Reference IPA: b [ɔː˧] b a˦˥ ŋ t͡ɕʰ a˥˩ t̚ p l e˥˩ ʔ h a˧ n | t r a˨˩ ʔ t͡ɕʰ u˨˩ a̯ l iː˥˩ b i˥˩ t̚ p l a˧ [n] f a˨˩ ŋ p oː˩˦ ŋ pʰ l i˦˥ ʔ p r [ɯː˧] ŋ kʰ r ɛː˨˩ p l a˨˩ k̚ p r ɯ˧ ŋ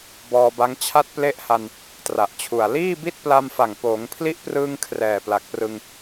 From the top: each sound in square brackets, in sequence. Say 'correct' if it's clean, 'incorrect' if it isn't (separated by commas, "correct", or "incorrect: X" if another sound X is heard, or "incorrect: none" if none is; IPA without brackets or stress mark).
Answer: correct, incorrect: m, correct